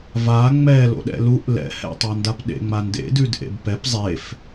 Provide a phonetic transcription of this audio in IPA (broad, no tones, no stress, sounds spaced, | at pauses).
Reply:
v a ŋ͡m ɛ l o̰ ɗ ɛ̰ l u ʔ l ɛ̰ h ɛ̰ tˤ ɑ n d a p ɗ ḛ ŋ͡m a n d ḛ d ʉ d ʔ ḛ b p ɛ p zˤ e f